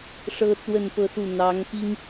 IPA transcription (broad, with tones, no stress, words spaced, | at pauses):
ʂɤ˥t͡swə˥˧npɤ˥˧su˥˩ n̪ɑ˧˥ŋpi˥ŋ